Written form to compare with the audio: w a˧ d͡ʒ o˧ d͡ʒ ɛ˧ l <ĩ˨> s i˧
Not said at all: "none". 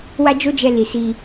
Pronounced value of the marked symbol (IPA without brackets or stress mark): i˨